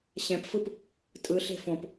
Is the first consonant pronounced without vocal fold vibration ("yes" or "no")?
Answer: yes